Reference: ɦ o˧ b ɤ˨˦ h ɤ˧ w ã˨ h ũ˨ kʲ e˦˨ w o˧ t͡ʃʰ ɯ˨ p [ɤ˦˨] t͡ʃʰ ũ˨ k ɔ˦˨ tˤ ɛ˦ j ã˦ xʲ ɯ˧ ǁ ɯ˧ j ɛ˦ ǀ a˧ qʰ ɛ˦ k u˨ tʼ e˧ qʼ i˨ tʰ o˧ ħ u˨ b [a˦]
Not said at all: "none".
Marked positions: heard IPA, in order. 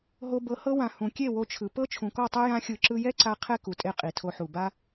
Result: ɤ˦, a˦

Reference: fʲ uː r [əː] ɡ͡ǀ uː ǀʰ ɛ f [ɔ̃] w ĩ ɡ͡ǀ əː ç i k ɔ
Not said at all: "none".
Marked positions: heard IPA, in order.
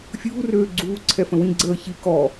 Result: øː, ə̃

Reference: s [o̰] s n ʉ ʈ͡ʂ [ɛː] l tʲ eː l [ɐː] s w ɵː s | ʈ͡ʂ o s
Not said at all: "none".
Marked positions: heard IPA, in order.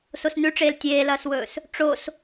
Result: o, eː, ɐː

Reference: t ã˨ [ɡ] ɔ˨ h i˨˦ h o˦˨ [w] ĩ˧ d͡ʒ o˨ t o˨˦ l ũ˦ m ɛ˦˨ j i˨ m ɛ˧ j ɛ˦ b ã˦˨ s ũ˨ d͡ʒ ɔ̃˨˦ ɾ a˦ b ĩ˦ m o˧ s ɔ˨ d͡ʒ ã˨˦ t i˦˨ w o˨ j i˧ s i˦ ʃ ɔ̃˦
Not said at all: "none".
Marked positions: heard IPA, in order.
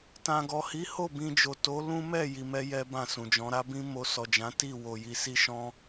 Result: ɡ, b

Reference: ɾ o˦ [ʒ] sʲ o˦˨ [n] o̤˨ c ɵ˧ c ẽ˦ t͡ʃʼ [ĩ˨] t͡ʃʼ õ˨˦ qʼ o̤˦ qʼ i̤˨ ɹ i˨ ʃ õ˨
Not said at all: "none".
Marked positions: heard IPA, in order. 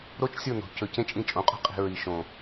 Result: t͡ʃ, n, ĩ˧

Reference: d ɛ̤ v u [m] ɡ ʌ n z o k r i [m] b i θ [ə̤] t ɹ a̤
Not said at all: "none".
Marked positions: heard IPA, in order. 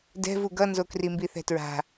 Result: none, m, ɛ̤

